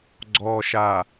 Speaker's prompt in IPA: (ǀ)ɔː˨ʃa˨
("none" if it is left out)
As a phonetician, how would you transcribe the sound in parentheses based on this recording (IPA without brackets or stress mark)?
ɡ͡ǀ